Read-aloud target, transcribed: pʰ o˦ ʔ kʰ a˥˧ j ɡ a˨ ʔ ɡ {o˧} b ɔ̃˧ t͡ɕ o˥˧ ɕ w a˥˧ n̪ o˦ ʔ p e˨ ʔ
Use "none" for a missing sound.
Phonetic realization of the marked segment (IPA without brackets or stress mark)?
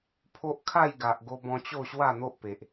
o˧